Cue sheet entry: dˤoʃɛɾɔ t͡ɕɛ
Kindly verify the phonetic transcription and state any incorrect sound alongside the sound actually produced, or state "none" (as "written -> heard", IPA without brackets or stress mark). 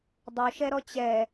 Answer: none